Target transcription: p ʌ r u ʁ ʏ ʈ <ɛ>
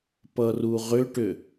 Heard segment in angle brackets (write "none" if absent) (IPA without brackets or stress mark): ʏ